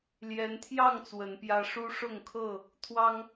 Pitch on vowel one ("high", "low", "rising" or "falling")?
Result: rising